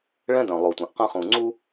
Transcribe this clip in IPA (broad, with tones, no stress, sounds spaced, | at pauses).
ɭ ɛ̃˦ d œ̃˨ lˠ o˨ tʷ œ̃˨ ʔ q ɐ̃˦ χ ũ˨ ŋ͡ǀ u˦